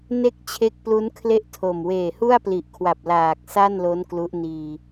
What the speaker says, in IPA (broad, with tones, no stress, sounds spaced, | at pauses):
n e˦˥ k̚ t͡ɕʰ e˦˥ k̚ p l u˦˥ n kʰ l e˥˩ ʔ tʰ o˨˩ m w eː˨˩ h u˥˩ a̯ p l i˨˩ ʔ kʰ w a˨˩ p̚ l aː˨˩ k̚ s a˥˩ n l o˦˥ n k l u˦˥ ʔ n iː˧